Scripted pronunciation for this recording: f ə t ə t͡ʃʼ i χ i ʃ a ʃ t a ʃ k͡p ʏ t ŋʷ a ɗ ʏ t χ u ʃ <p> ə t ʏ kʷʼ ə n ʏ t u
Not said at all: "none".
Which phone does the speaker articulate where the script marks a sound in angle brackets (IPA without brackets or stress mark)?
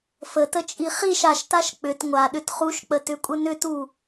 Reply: k͡p